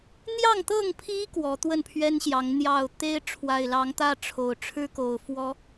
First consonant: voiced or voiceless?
voiced